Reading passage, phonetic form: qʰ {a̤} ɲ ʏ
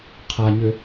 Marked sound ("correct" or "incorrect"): incorrect